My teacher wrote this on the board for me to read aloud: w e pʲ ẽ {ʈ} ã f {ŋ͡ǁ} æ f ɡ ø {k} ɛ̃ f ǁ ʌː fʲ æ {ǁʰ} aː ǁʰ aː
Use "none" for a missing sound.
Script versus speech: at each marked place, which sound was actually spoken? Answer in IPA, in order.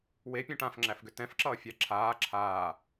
ʈ, ŋ͡ǁ, t, ǁʰ

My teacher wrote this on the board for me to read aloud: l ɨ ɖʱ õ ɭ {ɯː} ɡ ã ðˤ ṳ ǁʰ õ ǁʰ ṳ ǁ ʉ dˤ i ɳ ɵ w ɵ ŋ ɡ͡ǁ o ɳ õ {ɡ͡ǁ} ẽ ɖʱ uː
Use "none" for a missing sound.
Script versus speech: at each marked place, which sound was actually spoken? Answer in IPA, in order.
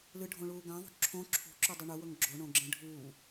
uː, ɡ͡ǁ

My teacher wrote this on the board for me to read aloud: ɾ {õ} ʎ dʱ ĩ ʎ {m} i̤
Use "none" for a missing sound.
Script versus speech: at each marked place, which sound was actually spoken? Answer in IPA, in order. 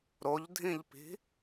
o, p

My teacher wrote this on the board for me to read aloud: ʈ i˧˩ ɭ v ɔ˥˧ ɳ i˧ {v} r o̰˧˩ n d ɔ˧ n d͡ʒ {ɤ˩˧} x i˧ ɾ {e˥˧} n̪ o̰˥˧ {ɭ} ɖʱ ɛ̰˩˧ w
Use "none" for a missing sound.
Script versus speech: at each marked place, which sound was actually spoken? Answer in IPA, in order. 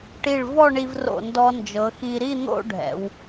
v, ɤ˩˧, i˥˧, none

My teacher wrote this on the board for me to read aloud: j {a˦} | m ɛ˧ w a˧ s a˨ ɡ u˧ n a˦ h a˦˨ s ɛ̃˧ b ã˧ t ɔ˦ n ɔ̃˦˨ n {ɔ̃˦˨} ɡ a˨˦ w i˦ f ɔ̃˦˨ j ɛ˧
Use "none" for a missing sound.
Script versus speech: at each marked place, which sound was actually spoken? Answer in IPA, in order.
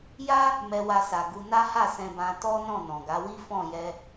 a˦, ɔ̃˨

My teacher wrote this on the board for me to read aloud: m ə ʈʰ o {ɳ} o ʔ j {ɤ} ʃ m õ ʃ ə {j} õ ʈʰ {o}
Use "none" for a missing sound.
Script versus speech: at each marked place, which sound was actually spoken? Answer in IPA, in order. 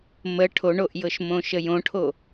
ɳ, ɤ, j, o

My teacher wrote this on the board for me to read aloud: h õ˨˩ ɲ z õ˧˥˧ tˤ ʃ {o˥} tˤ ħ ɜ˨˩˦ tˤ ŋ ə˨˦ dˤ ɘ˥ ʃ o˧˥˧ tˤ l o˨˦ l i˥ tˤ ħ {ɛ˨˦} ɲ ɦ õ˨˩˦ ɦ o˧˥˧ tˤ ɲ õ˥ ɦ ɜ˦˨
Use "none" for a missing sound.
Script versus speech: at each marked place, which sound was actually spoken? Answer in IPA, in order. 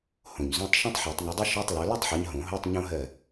õ˥, ɛ˨˦

